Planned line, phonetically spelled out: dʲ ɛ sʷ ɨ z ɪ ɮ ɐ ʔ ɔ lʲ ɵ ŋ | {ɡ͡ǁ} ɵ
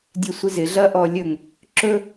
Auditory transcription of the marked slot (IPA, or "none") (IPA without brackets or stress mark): ǁ